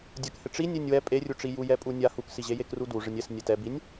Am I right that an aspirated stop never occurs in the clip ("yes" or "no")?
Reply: yes